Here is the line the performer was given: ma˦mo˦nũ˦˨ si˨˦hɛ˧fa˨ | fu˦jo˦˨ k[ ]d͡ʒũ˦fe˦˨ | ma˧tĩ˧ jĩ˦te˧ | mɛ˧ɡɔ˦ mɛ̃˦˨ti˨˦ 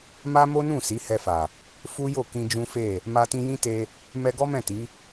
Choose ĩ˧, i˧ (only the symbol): ĩ˧